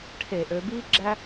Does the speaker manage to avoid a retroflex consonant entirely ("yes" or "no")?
no